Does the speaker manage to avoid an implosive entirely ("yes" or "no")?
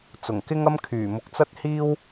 yes